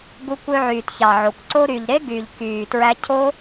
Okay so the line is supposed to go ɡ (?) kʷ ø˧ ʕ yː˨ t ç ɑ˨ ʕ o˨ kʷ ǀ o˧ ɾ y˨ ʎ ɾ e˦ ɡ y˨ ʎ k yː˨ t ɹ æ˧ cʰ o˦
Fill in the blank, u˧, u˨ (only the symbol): u˧